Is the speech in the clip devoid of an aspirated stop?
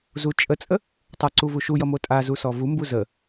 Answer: yes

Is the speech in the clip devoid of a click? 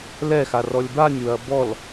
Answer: yes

